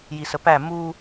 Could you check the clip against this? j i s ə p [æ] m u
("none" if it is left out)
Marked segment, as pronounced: æ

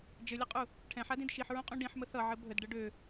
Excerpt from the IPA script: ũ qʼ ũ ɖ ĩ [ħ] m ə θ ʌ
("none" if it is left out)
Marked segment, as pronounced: ħ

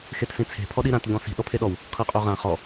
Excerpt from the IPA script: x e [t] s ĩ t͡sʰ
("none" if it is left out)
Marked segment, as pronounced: t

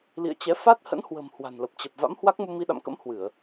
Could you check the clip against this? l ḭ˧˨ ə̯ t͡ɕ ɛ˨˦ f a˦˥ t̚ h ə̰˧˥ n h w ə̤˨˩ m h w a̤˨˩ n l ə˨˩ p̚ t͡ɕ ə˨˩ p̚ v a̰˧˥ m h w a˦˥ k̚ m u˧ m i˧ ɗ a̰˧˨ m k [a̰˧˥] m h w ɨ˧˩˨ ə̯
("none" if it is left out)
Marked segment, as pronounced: ə̰˧˥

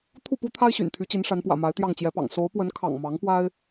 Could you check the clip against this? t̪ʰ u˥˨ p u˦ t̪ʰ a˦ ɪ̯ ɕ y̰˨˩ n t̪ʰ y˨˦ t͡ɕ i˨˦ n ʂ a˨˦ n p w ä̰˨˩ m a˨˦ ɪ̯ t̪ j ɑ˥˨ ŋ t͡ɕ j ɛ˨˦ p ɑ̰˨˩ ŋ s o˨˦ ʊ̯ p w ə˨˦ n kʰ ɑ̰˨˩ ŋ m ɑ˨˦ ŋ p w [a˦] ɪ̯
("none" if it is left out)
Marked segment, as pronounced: a˦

